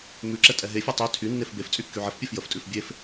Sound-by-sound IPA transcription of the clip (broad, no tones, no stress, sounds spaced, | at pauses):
m ʉ ǁ ɛ tʼ ɛ ɦ e fʲ ɛ tˤ ʉ tʰ y nː e f b e f t͡sʼ y kː y ʕ ə f pʲ ɛ f j ə f tʼ ʉ f bʲ e f